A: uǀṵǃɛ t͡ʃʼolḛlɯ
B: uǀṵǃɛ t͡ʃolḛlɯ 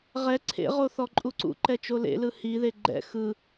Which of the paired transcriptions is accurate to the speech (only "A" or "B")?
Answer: B